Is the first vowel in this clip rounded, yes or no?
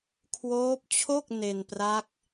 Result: yes